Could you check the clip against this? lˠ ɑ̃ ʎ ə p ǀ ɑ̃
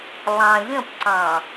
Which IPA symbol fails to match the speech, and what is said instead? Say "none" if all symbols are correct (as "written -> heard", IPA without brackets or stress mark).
ə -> ə̃